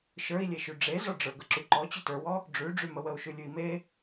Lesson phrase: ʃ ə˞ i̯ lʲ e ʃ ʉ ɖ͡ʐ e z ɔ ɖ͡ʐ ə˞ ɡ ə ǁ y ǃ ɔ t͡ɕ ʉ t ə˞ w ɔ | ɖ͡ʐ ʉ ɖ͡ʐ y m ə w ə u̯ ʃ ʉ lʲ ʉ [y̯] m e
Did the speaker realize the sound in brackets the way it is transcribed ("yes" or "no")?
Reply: no